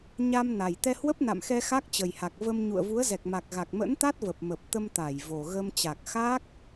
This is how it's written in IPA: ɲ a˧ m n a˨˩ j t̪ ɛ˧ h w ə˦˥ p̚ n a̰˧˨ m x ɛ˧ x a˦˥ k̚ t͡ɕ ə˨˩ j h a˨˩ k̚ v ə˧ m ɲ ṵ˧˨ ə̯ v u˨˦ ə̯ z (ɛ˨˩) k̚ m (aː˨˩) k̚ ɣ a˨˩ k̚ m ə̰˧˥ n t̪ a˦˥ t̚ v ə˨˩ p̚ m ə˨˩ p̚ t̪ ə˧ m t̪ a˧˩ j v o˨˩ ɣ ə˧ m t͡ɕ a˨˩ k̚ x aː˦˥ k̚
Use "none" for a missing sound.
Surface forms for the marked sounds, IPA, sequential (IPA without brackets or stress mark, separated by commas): ɛ˨˩, a˨˩